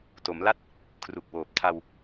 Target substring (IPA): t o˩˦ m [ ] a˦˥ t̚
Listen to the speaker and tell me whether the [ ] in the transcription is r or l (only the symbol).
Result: l